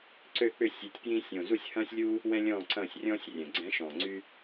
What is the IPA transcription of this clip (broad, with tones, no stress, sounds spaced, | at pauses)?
ǀ ø˦˨ k͡p ʏ˦˨ sʲ ø˨˦ tʲ p j ĩ˦ sʲ õ˨˩ z u˦˨ sʲ h ɐ̃ː˦ sʲ lʲ u˦ | w ɛ̃˦ lʲ ɔ̃ː˦˨ ǀ ɐ̃ː˦˨ sʲ rʲ ɔ̃ː˦ sʲ rʲ ɛ̃˨˩ ɡ͡ǀ ɛ̃˨˦ ʃ ɔ̃ː˨˩ ŋ͡ǀ y˦